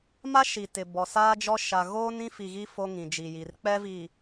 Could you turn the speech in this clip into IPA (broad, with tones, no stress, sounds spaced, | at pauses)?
m a˦ ʃ i˨ t ɪ˨ b ɔ˨ s aː˦ d͡ʒ ɔ˦ ʃ a˨ ɣ oː˦ n ĩ˦ f i˨ ɣ i˦ f o˦ ŋ ĩ˨ d͡ʒ i˨ j iː˨ r k͡p ɛ˦ v i˨